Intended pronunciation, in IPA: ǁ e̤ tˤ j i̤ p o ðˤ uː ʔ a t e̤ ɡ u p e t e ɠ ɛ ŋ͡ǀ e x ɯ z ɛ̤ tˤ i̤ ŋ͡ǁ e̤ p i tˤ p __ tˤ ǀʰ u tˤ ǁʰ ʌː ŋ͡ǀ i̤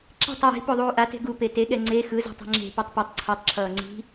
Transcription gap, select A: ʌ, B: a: A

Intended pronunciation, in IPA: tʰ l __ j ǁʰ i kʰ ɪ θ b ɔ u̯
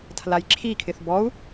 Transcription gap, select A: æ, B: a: B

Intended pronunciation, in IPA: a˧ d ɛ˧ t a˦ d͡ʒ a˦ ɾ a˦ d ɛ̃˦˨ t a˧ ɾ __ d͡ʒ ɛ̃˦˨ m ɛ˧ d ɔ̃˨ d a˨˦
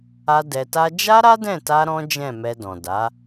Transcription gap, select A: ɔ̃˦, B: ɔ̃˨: A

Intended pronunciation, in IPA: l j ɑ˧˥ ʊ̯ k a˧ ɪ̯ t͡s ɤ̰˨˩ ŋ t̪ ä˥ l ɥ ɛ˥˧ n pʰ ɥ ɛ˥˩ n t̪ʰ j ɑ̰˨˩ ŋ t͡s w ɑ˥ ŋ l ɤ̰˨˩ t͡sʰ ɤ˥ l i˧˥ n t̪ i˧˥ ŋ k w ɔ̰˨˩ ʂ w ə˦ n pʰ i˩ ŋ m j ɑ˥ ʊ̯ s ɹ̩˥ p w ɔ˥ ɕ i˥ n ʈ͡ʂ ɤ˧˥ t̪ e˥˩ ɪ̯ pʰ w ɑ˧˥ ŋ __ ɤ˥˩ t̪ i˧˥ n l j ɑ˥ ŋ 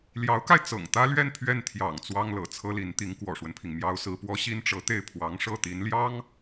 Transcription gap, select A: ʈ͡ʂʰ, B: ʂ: B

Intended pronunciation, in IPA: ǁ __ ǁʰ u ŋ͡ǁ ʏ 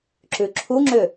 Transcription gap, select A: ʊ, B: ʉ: B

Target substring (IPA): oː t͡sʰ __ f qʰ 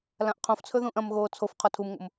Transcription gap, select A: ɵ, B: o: B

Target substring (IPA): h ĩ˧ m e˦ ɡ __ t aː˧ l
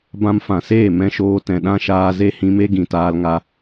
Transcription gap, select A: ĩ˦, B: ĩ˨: B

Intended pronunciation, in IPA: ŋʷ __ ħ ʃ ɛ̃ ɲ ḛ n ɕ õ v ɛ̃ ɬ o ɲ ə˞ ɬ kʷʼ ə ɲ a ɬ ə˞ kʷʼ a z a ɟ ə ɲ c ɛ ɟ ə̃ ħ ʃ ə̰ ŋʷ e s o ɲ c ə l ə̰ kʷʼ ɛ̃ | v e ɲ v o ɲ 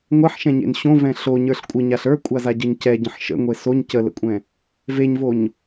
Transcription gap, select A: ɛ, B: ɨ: A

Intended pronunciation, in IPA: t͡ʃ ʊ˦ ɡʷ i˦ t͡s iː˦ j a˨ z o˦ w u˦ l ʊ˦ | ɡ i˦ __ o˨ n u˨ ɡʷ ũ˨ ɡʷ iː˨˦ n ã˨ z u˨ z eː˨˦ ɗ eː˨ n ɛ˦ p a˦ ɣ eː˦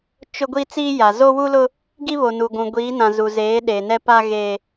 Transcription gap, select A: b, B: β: B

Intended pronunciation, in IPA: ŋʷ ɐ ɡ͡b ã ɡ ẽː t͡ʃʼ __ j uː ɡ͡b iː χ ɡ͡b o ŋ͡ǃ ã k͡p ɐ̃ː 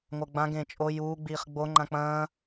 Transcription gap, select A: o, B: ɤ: A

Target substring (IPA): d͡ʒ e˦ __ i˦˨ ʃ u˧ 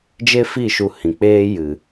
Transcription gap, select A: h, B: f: B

